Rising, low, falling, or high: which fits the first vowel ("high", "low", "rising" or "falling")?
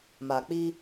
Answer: low